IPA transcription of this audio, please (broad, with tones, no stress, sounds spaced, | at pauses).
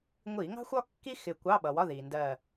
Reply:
ŋʷ i˧˩˧ ŋ ɑ̤˥ xʷ ɒ˥ kː i˥ x ɪ˧˩ kʷ ɑ˧˥˧ ɓ ʌ˩ w ɒ˧˥˧ ð i˩ n d ɜ˧˩